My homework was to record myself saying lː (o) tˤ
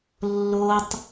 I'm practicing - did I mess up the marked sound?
no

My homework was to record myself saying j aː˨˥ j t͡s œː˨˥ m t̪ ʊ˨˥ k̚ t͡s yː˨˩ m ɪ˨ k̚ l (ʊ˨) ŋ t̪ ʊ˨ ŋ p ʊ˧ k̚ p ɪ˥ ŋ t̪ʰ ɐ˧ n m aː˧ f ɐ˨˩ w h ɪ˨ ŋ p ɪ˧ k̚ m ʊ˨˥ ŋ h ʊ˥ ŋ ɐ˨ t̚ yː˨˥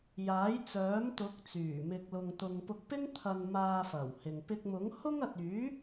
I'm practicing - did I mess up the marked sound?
no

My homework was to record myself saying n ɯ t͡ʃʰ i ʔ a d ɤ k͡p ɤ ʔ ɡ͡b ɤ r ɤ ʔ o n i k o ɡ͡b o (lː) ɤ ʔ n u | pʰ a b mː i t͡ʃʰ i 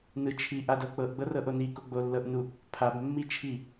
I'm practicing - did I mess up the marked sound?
no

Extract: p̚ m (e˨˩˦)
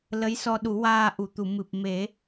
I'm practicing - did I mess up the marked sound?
no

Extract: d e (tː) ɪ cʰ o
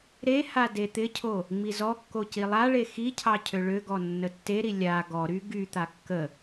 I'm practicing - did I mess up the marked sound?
yes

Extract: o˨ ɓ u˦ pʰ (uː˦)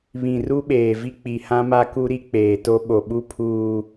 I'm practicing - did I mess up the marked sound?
no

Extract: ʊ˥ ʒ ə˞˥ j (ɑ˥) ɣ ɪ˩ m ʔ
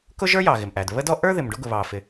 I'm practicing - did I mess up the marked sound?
yes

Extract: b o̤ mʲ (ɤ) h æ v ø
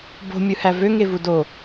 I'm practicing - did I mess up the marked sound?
yes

